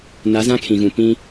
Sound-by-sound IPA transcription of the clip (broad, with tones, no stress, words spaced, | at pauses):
na˨˦zã˦ kʰĩ˨ɣũ˨ pĩ˦